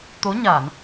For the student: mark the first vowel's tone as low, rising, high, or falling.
rising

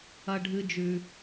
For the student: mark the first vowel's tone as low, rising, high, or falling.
high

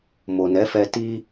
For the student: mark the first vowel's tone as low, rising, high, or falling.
low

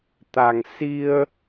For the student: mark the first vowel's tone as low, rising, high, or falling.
low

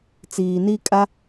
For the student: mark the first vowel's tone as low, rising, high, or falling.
low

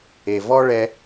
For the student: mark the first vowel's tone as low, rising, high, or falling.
low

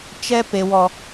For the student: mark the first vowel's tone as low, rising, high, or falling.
high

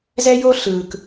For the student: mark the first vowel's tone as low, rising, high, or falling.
high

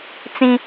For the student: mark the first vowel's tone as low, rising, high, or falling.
high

